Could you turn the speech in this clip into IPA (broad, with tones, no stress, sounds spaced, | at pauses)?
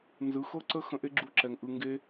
n z ɯ˨˦ x ɤ˦ ǀ ə˦ x ə̃˧ ʔ e˦ ɡ͡ǁ u˧ ǁ ɛ˨ ŋ ʔ ɯ˨ ŋ ɡ e˧